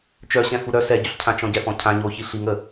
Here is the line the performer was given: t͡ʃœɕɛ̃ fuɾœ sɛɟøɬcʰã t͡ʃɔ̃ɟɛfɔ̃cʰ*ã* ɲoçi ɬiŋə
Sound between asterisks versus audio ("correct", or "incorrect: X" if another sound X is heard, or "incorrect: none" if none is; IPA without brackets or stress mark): correct